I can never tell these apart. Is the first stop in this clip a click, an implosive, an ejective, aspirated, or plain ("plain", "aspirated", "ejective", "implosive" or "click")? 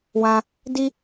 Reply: plain